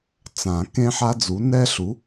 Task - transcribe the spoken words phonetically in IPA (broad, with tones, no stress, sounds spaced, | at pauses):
t͡s ã˨˩˦ k ẽ˥ ħ a˥ d͡z u˨˥ n ɛ˥ ɬ u˨˥